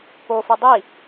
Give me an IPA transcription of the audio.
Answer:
p o f ɯ dˤ i

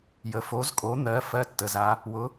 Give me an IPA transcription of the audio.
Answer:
j ə˩ f o˩˧ z kʼ o˩˧ n̪ ɜ˩˧ f ɜ˧˥ tː ə˩ z a˩˧ | w ʊ˩˧

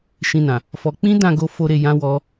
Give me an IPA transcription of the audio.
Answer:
ʃ ĩ˧ n ã˨ | f ɔ˧ k͡p ĩ˦ d ã˦˨ ɡ o˧ f o˦ ɾ e˧ j ã˦ w ɔ˧

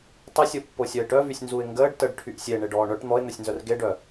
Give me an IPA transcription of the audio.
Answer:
tˤ ə sʲ o pː o sʲ œ ɪ̯ ʈ œ v y sʲ n z u ɪ̯ ŋ ɡ əː ɖ t ə ɖ ʈʰ y ʔ sʲ e ɳ e ɖ ɔː ɳ œ ʈ n̪ ɔ ɪ̯ n̪ œ sʲ n z œ r ɡ e ɖ œ

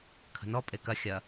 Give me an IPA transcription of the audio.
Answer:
kʰ ə̤ n ɔ pʼ e k ɐ xʲ ɐ

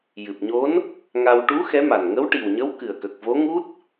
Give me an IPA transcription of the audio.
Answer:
j ɨ˨˩ p̚ ɲ o˧˥ n | ŋ a˧ w ʈ u˧˥ x ɛ˧˥ m a˨˩ n ŋ ə˧˥ w ʈ i˨˩ w ɲ ə˧˥ w k ɨ˨˩ ə̯ k ə˨˩ k̚ v o˧˥ ŋ u˦˥ t̚

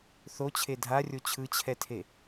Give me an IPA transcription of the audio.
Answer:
θ o t͡ɕʰ e dʱ a rʲ o t͡ɕʰ ɯ t͡ɕʰ ɛ tʰ e

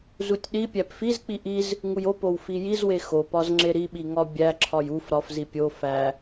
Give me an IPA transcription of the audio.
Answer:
z u tʲ ɗ i pʲ æ p f i z k͡p i ʔ i z | ŋ u j o p o w f i j i z w e x o p ɒ z ŋ͡ǁ e ɾ i ɓ i ŋ ɒ bʲ æ ǁʰ ɒ j u f ɾ ɒ f z i pʲ o f æ

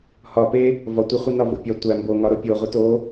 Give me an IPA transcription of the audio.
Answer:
h ɒ p e | v ɒ tʷ e χʷ i n ɒ v o̰ pʲ ɒ tʷ æ m b o ŋ ɒ ɾ o pʲ o ʁʷ i t o

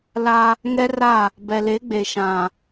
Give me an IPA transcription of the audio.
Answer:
l a˦ | ŋ ɛ˦ r a˦˨ | b ɛ˨ l e˨˦ ɡ͡b e˨ ʃ ã˨

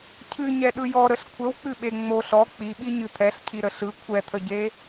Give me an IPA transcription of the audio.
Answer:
cʰ ɨ ɲ ɛ ɗ ɯ j ɔ ɾ ə ɬ kʷʰ ə w k͡p ɨ ɓ e ŋ͡m o ɬ ɔ k͡p i ɓ i ɲ ɨ t̪ʰ ɛ ɬ cʰ i ɾ ə ɬ ɯ kʷʰ ɛ t̪ʰ ə ɟ e

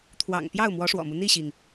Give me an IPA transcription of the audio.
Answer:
t̪ʰ w ɑ̰˨˩ ŋ p j ɑ˥˩ ʊ̯ m w ɔ˧˥ ʂ w ɔ̰˨˩ m u˦ n̪ i˥˩ ɕ i˩ ŋ

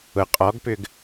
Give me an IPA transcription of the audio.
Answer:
ʊ qʼ ɔ ɡ p ʏ ɡ

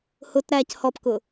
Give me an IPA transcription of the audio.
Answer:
h ʊ t ɾ æ c h ɔ p k ʊ

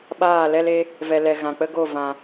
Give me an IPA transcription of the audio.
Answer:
ɓ aː˦˨ l ɛ˦ l e˧ | v ɛ˨ l ɛ˨ ɣ ã˨ k͡p ə˦ ɡ o˦˨ v ã˨

